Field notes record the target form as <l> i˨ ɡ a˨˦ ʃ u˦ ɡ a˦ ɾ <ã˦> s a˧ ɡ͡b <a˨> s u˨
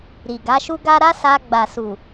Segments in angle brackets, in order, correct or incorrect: incorrect: ɾ, incorrect: a˦, correct

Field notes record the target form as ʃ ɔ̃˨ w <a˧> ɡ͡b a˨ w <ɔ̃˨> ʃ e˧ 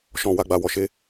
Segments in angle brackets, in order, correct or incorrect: incorrect: a˨, incorrect: ɔ˨

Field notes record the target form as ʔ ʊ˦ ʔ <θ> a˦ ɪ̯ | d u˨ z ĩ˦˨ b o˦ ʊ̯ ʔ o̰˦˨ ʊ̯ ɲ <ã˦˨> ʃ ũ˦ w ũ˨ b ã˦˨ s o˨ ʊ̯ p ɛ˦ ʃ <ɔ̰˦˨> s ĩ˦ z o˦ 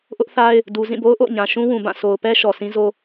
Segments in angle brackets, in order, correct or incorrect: correct, incorrect: ã˨, incorrect: ɔ˨

